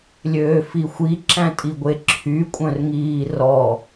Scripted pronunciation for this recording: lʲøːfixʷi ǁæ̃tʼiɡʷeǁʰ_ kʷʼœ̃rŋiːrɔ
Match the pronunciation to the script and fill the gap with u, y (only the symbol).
y